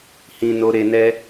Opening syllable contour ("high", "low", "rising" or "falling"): low